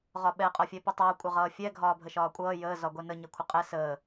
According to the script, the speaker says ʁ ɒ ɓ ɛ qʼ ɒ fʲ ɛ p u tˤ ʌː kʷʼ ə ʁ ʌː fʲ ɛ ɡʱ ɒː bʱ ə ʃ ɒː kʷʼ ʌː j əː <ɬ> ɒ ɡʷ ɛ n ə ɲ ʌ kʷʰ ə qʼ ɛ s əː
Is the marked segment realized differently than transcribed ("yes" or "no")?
yes